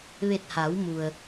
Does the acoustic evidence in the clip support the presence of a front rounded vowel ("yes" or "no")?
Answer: no